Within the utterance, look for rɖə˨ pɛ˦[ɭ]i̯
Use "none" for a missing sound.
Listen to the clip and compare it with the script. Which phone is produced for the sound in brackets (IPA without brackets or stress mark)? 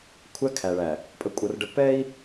none